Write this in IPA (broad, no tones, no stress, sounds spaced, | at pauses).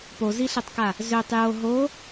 p o z i ɬ e tˤ k a | z ø tˤ j o ɦ o